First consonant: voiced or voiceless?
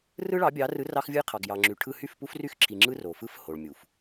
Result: voiced